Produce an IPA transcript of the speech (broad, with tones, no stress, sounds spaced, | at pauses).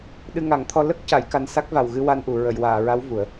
ɗ ɨ˧ ŋ a˨˩˦ ŋ t̪ʰ ɔ˧ l ə˦˥ k̚ c a˨˩˦ j k a˧ n s a˦˥ k̚ v a˨˩ w ɣ ɨ˧ w a˧ n ʔ u˨˩˨ ɹ ə˨˩˨ j w aː˨˩˨ ɹ a˧˥ w v u˨˩˦ ə̯